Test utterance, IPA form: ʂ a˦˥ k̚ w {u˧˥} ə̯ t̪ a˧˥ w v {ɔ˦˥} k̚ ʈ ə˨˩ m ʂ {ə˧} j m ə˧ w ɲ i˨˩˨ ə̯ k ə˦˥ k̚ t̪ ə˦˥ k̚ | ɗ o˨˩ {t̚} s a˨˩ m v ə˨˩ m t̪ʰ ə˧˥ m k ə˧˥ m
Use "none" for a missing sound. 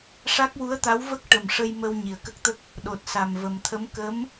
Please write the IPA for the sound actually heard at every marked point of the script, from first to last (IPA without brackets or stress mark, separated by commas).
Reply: u˧˥, ə˦˥, ə˧, t̚